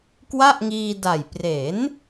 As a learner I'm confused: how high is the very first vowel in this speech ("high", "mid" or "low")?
low